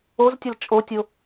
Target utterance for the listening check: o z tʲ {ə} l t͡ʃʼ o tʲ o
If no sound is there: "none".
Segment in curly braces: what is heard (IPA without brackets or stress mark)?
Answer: ʌ